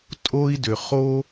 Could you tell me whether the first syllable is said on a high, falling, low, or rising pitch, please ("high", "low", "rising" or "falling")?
high